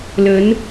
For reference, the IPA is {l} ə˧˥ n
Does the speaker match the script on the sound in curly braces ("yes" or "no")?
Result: yes